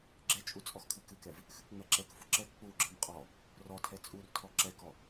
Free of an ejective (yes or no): no